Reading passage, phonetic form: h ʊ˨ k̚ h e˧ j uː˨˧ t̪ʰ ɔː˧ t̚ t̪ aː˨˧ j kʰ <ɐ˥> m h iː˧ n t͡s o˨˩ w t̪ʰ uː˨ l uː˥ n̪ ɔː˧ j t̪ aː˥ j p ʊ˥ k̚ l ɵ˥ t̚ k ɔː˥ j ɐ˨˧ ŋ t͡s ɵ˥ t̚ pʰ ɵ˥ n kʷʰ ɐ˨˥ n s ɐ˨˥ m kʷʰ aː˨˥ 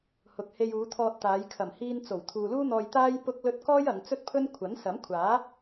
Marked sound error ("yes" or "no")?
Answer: yes